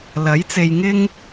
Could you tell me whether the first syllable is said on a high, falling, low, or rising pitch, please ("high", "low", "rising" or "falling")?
rising